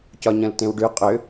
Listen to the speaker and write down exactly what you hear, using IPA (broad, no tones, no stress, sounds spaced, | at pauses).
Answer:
c ɒ ɲ ɐ̃ l t ẽ w ɖ ʉ qʼ ø